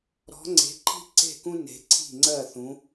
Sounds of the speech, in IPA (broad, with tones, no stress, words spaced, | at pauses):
ɾɔ̤˨˦ ŋ͡ǀe̤˨˦ǃʰi̤˦ ǀe̤˥˩kũ˦ne̤˨˦ ǀʰi̤˥˩ŋ͡ǀɜ˥˩ θũ˨˦